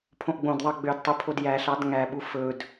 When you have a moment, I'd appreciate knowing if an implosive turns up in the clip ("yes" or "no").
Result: yes